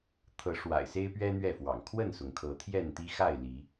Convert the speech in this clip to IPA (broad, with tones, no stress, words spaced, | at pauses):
t̪ʰɤ˨˦ʂwa̰˨˩ɪ̯se˦ɪ̯ pɥɛ˦ n̪ɥɛ˥˨fwɑ̰˨˩ŋ kʰwə˥˨nsʊ˩ŋkʰɤ˨˦ t̪ʰjɛ˥˨nt̪i˦ xa˥˨ɪ̯li˨˦